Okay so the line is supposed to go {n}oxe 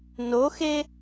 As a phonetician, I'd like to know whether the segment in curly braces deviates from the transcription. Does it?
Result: no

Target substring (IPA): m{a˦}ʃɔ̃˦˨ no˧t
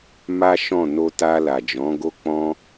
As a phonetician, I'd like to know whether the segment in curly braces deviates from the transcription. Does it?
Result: no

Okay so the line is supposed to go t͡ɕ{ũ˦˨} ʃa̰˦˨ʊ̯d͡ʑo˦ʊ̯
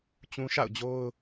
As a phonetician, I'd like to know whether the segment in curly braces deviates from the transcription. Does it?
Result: yes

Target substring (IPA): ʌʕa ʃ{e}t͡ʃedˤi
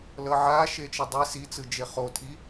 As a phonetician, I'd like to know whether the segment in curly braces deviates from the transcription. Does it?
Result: no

